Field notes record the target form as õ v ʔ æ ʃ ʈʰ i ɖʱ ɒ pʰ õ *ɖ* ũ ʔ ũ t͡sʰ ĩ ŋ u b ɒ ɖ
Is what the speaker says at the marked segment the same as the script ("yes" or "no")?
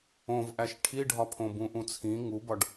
no